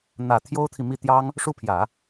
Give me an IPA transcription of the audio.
n̪ ä˨˩ t̪ʰ j o˥ ʊ̯ t̪ʰ i˨ m i˥˩ t̪ j ɑ˥ ŋ | ʂ u˥˩ pʰ j ä˨˩˦

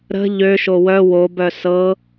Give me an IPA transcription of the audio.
ɾ ə̤ ʎ ø ʃ o w œ w o b œ s ɤ

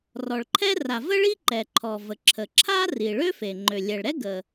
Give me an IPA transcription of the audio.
r ɔ˩ ɭ ǃʰ ɛ˥ r a˩ v ə˥ ɭ i˥ ǃ ɛ˩ ǃʰ ɔ˩ v ə˩ ǁʰ ə˩ ǁʰ a˥ r i˩ ɭ ø˥ f e˩ ŋ͡ǃ ø˩ lʲ ɛ˩ ɭ ɾ ɛ˥ ɡ ə˩

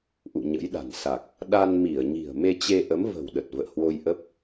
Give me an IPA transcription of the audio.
ʔ ṵ˧˨ ɲ ə̰˧˥ j ɗ a̤˨˩ n s a˨˩ k̚ | ɗ a˧ n m i˧˩ ə̯ ɲ i̤˨˩ ə̯ m e˧ t͡ɕ e˧ ʔ ə˨˦ m v ə̤˨˩ w ɗ ə˨˩ t̚ v ə̰ː˧˨ h w o˧ j ʔ ə˦˥ p̚

